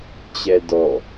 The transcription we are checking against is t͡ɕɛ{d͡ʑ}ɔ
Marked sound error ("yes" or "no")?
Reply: yes